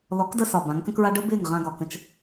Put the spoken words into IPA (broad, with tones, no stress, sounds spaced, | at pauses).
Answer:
l ɔ˨˦ k d ə˧ s ɒ˨ b ã˨˦ ŋ k ə̃˦ k ɹ a˦ ɖ ə˦ b ɪː˦˨ ŋ ʁ ã˧ ɡ ɒ˨ k ə̃˧ t͡ʃ